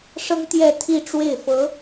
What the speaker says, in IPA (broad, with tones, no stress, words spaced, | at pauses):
ʂɤ˥ŋt̪jɛ˥˧t̪ʰi˥˧ ʈ͡ʂwe˥˩ɪ̯fɤ˧˥